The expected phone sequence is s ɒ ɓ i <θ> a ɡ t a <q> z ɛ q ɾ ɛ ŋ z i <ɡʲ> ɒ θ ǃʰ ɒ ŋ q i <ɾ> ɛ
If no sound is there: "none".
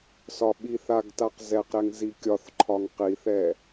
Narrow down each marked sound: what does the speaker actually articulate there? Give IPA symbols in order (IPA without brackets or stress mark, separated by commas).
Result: θ, q, kʲ, θ